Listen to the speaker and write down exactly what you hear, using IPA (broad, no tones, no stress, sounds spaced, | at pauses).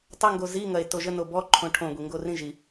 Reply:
tˤ ə ŋ ɡ o z i ŋ ɐ e̯ t o ʒ ə n o b ɔ ǃʰ õ ʈʰ õ ɡʷ i ŋ ɡ o r ĩ ʒ i